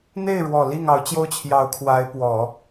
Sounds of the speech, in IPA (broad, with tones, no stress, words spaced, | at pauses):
n̪e˥˩ɪ̯ɻwɔ˨˩ li˥˩ŋɑ˧˥ʊ̯ t͡ɕjo˥ʊ̯t͡ɕʰjɑ˧˥ʊ̯ kʰwa˧˥ɪ̯pwɔ˨˩˦